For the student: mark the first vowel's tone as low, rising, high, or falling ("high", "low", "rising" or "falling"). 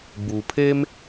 low